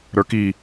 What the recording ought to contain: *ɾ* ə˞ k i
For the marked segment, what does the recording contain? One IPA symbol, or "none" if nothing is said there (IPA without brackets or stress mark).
ɾ